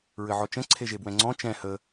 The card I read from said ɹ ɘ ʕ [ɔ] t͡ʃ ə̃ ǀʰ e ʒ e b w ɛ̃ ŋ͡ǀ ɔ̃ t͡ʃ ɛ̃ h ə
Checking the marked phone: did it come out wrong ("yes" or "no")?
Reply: no